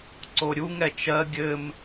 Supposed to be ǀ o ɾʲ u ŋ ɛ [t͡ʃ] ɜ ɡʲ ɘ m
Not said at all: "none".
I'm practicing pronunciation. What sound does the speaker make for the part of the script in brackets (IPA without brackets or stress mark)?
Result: t͡ʃ